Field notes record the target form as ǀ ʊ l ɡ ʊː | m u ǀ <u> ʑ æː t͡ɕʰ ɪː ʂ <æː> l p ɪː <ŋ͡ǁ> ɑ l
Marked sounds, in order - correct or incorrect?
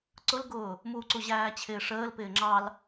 correct, incorrect, correct

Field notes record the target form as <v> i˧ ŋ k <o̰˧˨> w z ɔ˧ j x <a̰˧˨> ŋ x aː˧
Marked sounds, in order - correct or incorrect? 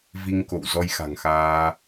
correct, correct, incorrect

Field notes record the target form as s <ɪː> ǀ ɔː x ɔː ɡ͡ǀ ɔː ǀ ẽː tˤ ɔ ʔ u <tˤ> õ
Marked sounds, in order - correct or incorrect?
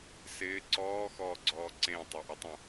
correct, correct

